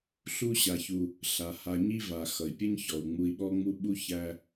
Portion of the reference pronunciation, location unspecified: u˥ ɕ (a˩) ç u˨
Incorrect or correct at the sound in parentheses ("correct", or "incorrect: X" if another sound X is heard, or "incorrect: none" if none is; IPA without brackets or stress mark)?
incorrect: a˨